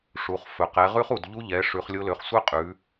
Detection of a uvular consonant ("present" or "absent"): present